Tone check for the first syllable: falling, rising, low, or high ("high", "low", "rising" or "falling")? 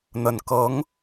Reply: low